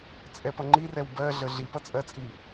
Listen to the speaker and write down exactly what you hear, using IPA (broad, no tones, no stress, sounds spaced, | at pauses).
t͡sʼ ɛ p ʌ ŋ͡ǃ i r ɛ w b ɜ ɮ ə ɮ i p ʌ t͡sʼ ɜ t͡sʼ i